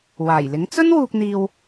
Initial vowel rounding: unrounded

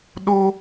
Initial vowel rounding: rounded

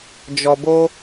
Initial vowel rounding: rounded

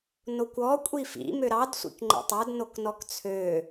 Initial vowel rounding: rounded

